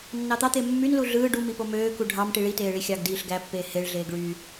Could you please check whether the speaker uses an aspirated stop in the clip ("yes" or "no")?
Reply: no